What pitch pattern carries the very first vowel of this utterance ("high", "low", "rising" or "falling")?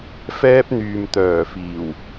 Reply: high